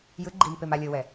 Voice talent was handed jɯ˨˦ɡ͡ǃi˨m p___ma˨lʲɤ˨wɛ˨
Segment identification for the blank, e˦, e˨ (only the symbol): e˨